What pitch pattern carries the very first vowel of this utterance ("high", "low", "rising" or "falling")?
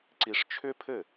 high